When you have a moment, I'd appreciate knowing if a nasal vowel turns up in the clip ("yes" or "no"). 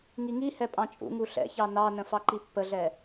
yes